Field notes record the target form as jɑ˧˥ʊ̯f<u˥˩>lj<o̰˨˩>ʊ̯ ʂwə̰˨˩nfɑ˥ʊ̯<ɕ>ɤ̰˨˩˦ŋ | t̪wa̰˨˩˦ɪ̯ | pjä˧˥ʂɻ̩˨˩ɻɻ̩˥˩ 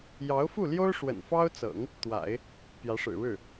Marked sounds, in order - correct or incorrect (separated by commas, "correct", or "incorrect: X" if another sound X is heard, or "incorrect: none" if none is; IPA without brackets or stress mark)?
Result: correct, incorrect: o˥, incorrect: t͡s